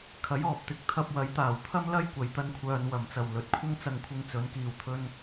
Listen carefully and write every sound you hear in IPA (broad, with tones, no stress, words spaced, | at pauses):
kʰɐ˨˥jɔː˨p̚t̪ɪ˧k̚ t̪ʰɐ˧p̚wɐ˨˥jt̪aː˨˩w t̪ʰɐ˥mlɐ˥j kʷɐ˨jt̪ɐ˧nkʷʰœː˨n wɐ˨˩mt͡sɐ˨˩w lɵ˨t̚kʷʰɐ˥ŋt͡sɐ˧ŋkʷʰɪ˧ŋ t͡sɵ˨˥nkiː˧wt̪ʰɵ˥n